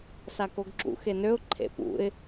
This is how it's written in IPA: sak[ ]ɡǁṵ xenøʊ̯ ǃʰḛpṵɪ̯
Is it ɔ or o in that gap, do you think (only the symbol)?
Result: o